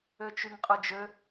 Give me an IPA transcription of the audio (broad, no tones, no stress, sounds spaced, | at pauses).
ø t͡ʃ y ŋ qʼ ɯ d͡ʒ ø